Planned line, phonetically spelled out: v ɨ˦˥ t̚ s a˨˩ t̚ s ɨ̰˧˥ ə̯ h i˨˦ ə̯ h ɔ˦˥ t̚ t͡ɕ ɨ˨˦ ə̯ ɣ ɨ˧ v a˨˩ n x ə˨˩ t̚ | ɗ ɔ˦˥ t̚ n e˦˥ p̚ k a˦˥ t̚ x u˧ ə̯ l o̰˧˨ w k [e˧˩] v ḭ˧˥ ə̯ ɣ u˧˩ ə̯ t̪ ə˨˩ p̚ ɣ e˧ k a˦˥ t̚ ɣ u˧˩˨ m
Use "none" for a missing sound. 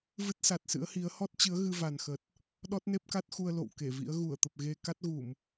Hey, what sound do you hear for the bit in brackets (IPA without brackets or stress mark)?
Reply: e˧˩